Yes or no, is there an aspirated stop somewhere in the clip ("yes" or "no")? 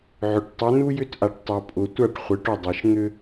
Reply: no